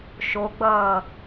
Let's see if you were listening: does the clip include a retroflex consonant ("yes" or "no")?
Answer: no